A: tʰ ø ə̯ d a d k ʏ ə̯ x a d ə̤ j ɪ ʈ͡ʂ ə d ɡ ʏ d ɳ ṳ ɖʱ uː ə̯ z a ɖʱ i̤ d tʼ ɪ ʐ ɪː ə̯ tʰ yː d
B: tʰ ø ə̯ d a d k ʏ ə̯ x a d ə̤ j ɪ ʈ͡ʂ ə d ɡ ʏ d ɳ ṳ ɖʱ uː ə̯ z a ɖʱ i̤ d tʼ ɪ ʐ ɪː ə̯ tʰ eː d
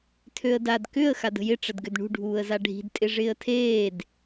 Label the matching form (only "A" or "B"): B